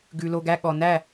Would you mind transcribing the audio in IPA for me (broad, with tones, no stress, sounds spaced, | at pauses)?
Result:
ɡ ʉ˩ l o˩ ɡ æ˩˧˩ ɠ ɔ˩ n æ˥˩